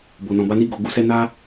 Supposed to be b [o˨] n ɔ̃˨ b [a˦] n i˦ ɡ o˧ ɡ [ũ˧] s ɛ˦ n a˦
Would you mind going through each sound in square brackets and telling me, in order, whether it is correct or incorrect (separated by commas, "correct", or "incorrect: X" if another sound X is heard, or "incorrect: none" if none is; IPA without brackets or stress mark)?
correct, incorrect: a˧, incorrect: u˧